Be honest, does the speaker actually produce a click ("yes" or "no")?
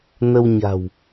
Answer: no